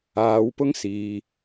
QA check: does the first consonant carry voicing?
yes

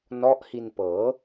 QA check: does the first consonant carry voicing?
yes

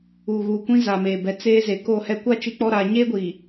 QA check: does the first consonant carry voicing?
yes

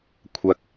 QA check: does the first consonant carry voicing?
no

